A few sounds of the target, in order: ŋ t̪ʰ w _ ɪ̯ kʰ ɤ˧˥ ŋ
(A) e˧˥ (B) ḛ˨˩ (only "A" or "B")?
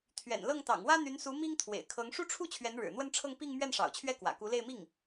B